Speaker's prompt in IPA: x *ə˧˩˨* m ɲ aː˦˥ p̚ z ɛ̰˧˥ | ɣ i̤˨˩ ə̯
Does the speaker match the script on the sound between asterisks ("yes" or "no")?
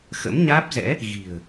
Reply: no